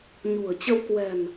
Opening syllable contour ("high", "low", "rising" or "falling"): low